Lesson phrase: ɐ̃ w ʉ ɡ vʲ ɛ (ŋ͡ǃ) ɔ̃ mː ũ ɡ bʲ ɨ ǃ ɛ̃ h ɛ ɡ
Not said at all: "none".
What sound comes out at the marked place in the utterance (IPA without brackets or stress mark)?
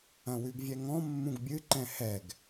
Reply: ŋ